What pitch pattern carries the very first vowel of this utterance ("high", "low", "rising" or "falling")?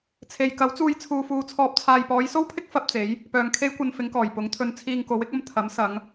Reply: low